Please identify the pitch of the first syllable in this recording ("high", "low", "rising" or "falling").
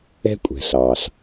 high